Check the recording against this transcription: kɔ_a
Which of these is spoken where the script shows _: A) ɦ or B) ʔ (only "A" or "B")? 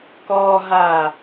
A